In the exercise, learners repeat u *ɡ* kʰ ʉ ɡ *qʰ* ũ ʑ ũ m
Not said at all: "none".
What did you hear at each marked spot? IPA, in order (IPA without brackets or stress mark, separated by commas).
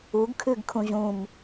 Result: ɡ, kʰ